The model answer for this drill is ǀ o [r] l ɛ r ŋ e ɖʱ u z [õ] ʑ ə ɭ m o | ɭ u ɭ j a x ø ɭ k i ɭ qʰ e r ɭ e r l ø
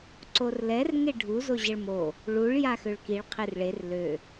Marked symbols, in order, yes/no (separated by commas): yes, no